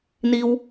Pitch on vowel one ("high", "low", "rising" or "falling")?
high